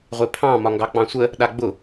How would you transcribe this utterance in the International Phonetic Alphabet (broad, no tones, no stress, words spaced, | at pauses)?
ʁʷepʰɑ̃ mɒŋɡɑk͡pɑ̃sʷə | ɗaɡ͡bʊ